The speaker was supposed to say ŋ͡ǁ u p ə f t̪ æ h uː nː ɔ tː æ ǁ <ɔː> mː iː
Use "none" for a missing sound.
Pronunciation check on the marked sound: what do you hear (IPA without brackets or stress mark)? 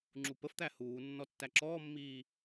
ɔː